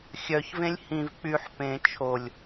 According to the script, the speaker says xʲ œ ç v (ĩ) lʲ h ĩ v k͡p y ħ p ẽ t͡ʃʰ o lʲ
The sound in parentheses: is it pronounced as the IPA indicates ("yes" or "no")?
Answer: no